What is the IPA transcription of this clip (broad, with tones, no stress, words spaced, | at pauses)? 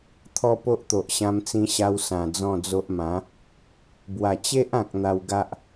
t̪ʰɔ˦po˦ʔt̪o˨ʔ ɕã˧mt͡sĩ˧ɕa˧w sã˨˩d͡zɔ̃˥˧d͡zo˦ʔ mã˨˦ | bwa˨˩ t͡ɕe˦ʔã˨k̚ n̪a˧wɡa˦ʔ